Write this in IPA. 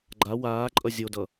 ɡ͡ǃ a w aː ǃʼ ʌ zʲ o d ʌ

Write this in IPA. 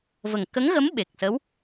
v ə˨˩ ŋ k ə˧˥ ŋ ɣ ə˧˥ m ɓ e˨˩ k̚ s ə˧˥ w

